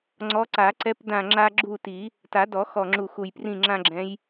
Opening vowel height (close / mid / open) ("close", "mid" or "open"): mid